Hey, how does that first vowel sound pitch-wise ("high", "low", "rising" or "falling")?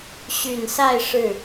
low